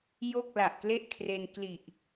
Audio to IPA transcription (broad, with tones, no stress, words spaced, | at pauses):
jo˥˩k̚ la˨˩ʔkle˥˩ʔkʰre˧n kli˨˩ʔ